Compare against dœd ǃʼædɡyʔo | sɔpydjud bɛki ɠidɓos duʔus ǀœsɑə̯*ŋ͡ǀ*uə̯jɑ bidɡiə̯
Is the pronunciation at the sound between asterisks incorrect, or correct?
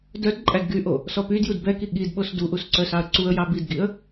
incorrect